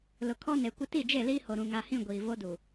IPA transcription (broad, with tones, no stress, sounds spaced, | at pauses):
l ʊ˨ kʰ ɔ˦ n e˨ kʷ ɪ˦ t i˦˨ d͡ʒ e˦˨ l iː˦ h o˨ ɾ ũ˨ ŋ a˨ h ĩ˦˨ ɡʷ iː˨ v o˦ d u˨